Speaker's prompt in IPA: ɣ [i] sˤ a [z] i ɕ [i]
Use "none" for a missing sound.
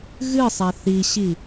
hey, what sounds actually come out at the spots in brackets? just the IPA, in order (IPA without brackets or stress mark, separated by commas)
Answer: ɨ, θ, i